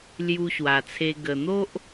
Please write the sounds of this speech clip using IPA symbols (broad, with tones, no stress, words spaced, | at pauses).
lju˧ɕwa˨˩t͡sʰe˧ ɡə˨˩n̪o˦ʔ